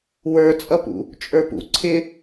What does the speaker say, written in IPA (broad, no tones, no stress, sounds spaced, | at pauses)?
w ə˞ t͡sʼ ʌ p ṵ | t͡ʃʼ ə˞ p ṵ ǀʰ ɪ